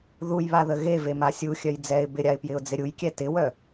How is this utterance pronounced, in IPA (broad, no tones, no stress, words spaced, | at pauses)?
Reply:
ðujβaðə ɣevema sʲuxʲœj d͡zɛɪ̯ bɪɾʲaɪ̯pjɪʊ̯d͡zɪ ɾʲujkʲɛ tɪwœ